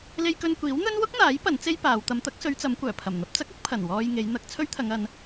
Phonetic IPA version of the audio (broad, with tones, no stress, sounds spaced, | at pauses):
l e˧ j k ɵ˧ n kʷ iː˨˥ w n̪ ɵ˥ n w ʊ˥ k̚ n̪ aː˨˥ j p ɐ˨˥ n t͡s e˥ j p aː˨˧ w t̪ ɐ˨˧ m t̪ ɐ˨˥ k̚ s ɵ˨˧ ɥ t͡s ɐ˨˧ m kʷ œː˨˩ pʰ ɐ˨˩ m n̪ ɐ˧ p̚ t͡s ɐ˥ k̚ ʊ˨˥ k̚ pʰ ɐ˨˩ n w ɔː˧ j ŋ e˨˧ j n̪ ɐ˧ k̚ t͡sʰ ɵ˥ ɥ t̪ʰ ɐ˨˧ ŋ ɐ˨˧ n